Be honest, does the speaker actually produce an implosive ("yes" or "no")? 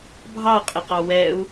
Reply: no